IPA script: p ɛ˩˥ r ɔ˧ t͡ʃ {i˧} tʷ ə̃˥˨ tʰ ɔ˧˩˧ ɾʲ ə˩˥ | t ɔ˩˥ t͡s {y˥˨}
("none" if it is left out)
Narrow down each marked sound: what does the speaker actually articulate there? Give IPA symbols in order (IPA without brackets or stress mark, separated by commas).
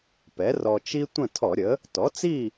i˥, i˥˨